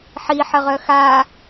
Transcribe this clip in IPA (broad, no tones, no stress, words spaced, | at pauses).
ħiħəʁœ xa